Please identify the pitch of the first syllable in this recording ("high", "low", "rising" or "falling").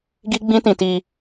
high